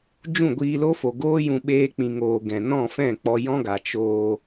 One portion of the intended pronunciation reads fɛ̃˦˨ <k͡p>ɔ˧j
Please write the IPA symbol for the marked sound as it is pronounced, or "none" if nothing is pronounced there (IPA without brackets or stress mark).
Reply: k͡p